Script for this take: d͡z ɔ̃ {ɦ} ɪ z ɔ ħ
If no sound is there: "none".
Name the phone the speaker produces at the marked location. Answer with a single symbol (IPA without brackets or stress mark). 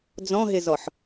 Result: ɦ